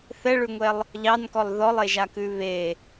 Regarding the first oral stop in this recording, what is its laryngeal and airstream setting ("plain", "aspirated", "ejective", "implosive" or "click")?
plain